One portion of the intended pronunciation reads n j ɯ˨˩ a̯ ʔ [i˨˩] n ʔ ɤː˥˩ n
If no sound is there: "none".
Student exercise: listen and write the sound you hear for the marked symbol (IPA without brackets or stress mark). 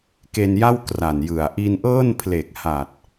i˧